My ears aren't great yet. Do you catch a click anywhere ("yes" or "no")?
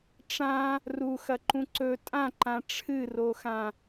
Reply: yes